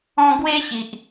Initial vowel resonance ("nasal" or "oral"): nasal